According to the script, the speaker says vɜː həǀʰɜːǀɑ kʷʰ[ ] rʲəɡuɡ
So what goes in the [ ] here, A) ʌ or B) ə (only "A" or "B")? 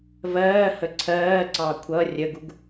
A